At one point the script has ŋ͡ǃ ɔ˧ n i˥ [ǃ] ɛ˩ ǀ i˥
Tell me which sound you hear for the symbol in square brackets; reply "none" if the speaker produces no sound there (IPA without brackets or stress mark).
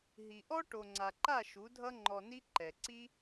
ǃ